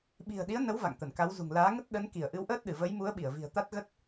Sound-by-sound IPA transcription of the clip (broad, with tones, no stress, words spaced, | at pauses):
ɓi̤˨˩ə̯ɗi˨˦ə̯nə˨˦w va̰˧˨ŋt̪ə˧˩nka˨˦wzṳ˨˩ŋ laː˨˦ŋə˦˥t̚ ɗə˨˦nki˧˩ə̯ ʔɨ˨˦wʔəː˦˥t̚ɗɨ˧˩və˨˦j mu˨˦ə̯ɓi˧˩ə̯vi̤˨˩ə̯ t̪a˦˥t̚ɣə˦˥t̚